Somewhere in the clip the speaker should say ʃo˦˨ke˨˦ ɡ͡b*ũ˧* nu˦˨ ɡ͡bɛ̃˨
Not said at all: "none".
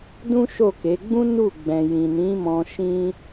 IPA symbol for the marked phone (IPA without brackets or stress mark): ũ˦